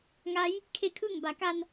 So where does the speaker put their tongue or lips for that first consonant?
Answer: velum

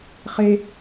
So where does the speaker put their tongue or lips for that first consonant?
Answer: uvula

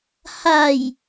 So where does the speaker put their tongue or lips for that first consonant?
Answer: throat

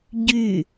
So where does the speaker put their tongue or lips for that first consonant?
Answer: palate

